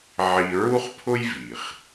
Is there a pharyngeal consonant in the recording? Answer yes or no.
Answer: yes